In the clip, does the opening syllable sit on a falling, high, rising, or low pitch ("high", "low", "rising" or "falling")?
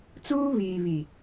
high